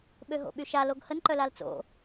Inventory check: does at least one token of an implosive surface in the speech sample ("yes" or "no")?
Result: yes